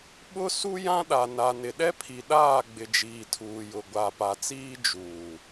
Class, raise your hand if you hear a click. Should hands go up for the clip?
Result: no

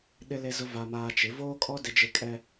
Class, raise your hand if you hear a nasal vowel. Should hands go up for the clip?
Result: no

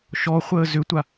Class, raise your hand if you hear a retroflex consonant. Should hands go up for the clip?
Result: no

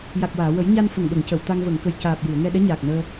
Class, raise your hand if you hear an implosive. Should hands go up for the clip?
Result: yes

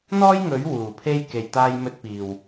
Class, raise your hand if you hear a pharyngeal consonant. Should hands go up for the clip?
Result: no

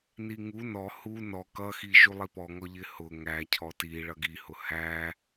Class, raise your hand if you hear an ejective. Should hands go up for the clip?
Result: no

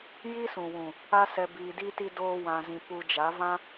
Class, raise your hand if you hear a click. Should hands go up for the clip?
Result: no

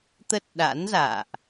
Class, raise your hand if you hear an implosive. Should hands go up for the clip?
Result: yes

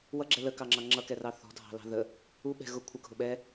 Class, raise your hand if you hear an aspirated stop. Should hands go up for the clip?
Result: yes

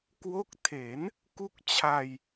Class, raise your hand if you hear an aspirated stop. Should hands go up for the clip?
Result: yes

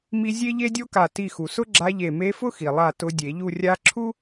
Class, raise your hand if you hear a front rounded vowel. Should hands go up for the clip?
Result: no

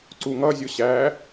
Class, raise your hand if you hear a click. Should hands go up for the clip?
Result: yes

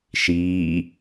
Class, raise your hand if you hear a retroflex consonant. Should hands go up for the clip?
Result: no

